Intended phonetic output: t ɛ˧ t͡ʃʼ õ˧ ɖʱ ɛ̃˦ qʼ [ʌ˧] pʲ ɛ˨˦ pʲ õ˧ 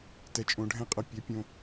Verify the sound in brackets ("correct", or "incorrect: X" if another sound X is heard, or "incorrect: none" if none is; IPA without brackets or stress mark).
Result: correct